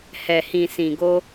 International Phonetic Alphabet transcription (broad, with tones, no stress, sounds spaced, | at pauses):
h ɛ˨ h ĩ˨ s ĩ˨ ɡ o˧